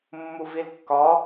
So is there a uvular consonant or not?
no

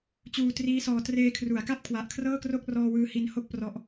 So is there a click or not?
no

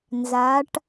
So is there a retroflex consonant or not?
yes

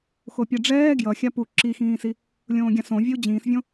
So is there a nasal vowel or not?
yes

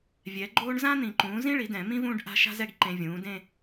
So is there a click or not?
yes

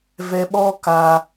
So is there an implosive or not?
yes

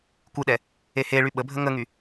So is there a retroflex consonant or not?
yes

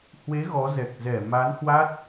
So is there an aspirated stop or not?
no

